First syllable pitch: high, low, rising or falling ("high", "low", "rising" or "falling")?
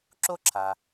high